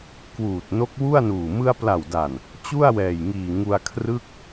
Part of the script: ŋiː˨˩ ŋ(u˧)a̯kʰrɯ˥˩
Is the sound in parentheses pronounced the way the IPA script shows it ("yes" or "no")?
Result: yes